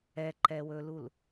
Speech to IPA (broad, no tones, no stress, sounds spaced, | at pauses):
ɛ ǃ ɛ w ɵ l u l